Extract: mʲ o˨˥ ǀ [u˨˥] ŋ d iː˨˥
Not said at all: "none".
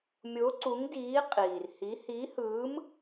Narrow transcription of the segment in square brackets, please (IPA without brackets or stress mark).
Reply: u˨˥